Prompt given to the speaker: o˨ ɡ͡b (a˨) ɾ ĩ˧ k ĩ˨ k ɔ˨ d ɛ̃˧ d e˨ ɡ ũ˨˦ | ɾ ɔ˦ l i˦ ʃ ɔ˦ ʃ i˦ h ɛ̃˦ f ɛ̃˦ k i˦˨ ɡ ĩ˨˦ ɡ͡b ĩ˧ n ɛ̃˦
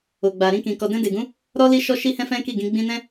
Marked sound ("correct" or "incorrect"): correct